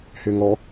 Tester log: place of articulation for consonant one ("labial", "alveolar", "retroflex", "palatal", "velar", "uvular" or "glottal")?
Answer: glottal